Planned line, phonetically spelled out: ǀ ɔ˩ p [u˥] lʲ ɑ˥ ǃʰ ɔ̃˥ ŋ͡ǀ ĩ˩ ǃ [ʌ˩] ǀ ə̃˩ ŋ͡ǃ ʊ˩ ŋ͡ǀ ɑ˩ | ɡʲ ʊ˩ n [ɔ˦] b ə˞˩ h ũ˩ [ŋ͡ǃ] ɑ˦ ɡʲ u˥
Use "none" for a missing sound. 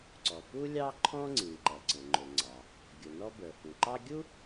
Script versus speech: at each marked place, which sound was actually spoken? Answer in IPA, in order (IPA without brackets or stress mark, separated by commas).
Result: u˥, ʌ˩, ɔ˦, ǃ